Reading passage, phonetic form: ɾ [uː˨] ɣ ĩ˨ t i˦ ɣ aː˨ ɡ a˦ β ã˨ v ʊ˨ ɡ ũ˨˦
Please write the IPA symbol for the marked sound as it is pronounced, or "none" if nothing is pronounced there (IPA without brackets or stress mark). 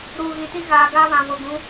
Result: uː˨